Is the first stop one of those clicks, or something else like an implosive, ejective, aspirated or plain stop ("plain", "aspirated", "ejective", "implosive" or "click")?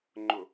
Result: click